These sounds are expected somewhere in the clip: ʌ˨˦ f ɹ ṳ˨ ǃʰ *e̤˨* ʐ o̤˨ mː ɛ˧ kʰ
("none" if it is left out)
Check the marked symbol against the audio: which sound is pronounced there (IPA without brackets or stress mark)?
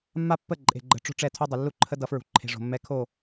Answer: e̤˨